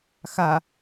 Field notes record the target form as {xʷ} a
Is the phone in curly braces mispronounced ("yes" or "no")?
yes